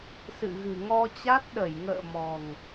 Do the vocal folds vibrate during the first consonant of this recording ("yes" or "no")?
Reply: no